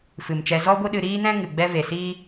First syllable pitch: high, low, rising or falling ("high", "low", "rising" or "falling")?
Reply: low